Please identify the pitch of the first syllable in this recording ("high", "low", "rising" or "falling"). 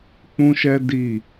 high